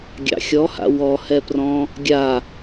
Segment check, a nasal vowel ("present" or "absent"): present